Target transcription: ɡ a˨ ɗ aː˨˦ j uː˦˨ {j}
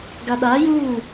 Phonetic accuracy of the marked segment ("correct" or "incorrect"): incorrect